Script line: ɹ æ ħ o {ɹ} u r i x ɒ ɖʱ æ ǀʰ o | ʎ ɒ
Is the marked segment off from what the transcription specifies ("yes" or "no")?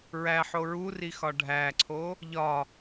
no